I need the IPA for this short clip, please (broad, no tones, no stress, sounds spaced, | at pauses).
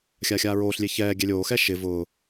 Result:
xʲ a xʲ aː ɹ oː ɬ lʲ e ç ɛː ɡʲ ɛ lʲ oː x ɛ ʃ ɪ v ʊː